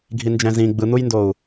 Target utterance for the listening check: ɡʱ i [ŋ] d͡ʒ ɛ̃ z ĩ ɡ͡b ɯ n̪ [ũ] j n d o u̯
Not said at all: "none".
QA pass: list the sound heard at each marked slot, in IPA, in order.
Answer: n, u

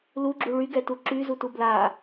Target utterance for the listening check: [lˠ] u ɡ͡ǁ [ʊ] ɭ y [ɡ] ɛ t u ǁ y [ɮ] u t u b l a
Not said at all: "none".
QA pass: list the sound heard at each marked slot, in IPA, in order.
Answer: l, u, ɡ, z

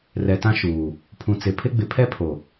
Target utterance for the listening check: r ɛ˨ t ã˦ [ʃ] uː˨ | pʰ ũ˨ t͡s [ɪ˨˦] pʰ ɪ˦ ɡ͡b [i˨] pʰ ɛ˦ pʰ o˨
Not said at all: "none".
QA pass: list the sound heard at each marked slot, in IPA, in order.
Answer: ʃ, ɪ˨˦, ɪ˨

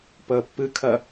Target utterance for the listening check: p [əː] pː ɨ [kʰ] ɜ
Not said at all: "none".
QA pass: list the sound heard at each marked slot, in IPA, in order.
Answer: əː, kʰ

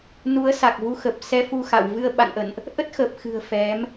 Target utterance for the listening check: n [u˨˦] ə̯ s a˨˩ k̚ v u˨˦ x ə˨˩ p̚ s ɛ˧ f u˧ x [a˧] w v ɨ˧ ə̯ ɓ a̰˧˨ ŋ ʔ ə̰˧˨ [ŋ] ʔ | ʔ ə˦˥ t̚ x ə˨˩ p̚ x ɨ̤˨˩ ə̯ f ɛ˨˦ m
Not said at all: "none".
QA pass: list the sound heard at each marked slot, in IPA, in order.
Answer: u˨˦, a̰˧˨, n

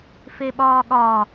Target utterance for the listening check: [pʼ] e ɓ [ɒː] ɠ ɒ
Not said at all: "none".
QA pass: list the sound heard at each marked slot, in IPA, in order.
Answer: f, ɒː

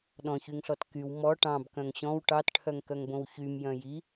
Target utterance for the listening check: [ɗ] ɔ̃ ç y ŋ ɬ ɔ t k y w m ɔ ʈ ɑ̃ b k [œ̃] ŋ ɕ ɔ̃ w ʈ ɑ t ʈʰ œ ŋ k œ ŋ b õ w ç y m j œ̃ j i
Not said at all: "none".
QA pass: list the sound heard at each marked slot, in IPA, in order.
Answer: ɗ, œ̃

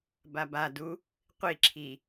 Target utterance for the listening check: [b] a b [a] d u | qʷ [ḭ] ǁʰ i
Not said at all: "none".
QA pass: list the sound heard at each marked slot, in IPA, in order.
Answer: b, a, i

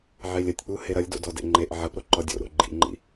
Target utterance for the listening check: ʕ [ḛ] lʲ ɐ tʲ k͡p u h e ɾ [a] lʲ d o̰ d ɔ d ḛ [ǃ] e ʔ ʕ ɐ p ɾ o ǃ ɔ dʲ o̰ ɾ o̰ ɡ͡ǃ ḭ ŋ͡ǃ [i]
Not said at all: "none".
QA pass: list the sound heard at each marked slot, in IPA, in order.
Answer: e, ɐ, ŋ͡ǃ, ḭ

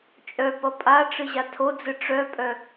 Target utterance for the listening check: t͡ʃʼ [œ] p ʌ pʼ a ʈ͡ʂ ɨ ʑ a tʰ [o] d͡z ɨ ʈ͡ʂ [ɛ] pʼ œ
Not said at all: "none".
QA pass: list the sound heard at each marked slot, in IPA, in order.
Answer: œ, o, œ

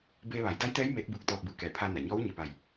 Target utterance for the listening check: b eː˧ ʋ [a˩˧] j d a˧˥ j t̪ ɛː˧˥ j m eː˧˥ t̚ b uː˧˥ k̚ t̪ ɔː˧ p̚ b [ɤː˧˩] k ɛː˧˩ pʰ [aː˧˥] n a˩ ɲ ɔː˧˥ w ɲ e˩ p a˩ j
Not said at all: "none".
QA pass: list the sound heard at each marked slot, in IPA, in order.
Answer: a˩˧, ɯː˧˩, aː˧

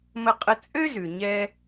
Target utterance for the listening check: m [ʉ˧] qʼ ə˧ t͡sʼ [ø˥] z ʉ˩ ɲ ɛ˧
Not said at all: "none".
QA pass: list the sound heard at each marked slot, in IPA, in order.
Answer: ə˧, ø˥

